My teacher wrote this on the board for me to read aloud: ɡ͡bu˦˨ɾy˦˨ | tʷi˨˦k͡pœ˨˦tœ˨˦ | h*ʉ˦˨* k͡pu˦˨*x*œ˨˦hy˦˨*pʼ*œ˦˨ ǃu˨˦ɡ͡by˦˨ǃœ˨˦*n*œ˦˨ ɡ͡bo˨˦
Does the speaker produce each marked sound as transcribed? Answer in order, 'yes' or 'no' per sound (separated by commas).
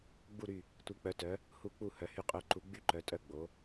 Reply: no, no, no, no